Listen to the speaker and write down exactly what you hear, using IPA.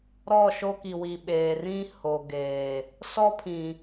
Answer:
ɾ ɔ˦˨ ʃ o˦ k i˨ w i˨ ɓ eː˨ r ĩ˦ h o˨ ɡ eː˨ | s ɔ˦ pʰ ĩ˨

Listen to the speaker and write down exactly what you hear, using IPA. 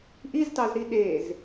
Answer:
ʔ i z t ɑ z ɾ i ɗ e z

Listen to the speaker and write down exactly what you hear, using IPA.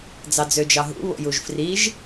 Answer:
d͡z ɑ d͡z ø d͡ʒ ɑ ɦ ṵ β o̰ j u ʒ f r i ʒ

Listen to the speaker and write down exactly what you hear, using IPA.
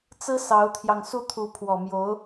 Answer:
t͡s ɹ̩˥ s ɑ˧˥ ʊ̯ t̪ʰ j ɑ˧ ŋ s u˥˩ t̪ʰ u˧˥ pʰ w ɔ˨˩ m j o˧˥ ʊ̯

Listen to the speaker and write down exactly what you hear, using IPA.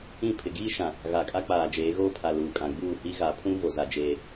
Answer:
ĩ˦˨ pʰ ɪ˨ ɡ iː˦ ʃ ã˨ | ɣ a˨ kʼ a˦ k͡p aː˨ d͡ʒ eː˨˦ ɣ oː˦ pʰ a˨ l uː˨ kʼ ã˨ ɡ͡b uː˦˨ h i˦ ɣ a˨ pʰ ũ˦ v o˦ z a˨ d͡ʒ eː˦

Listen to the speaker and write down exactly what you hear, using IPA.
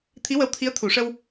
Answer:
t̪ʰ i˧˥ w ə˧˥ w t̪ʰ i˧˥ ə̯ t̪ʰ u˨˩˨ ʂ ə˧ w

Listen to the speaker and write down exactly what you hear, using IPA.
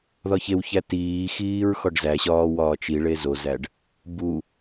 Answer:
ð ɒ ç e w ç æ t iː x iː ɹ x ɒ ɖ z æ ɕ ɒː w ɒː t͡ʃ i ɭ e z o z æ ɖ | b u

